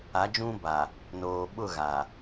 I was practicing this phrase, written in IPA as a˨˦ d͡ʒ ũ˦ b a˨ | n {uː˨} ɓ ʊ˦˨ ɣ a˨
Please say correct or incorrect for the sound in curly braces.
incorrect